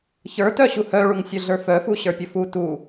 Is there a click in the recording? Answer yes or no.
no